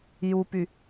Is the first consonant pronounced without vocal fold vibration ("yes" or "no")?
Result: no